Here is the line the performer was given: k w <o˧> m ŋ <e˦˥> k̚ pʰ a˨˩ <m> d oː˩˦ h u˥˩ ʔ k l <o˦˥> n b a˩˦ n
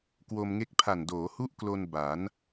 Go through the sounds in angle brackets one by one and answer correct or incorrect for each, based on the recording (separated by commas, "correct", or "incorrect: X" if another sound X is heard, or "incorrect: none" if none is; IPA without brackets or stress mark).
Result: correct, correct, incorrect: n, incorrect: o˧